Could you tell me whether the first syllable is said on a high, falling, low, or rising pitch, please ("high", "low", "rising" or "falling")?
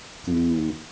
low